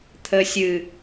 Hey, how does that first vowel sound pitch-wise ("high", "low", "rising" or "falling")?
low